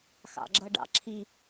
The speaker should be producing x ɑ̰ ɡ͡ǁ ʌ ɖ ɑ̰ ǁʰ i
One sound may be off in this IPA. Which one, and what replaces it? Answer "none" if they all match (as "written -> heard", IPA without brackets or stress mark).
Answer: none